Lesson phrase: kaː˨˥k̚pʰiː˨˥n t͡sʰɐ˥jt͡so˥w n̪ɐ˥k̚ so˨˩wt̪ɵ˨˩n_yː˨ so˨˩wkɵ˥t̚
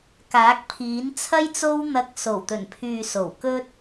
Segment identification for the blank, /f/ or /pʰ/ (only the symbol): pʰ